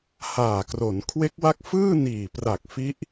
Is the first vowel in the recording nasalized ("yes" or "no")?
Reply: no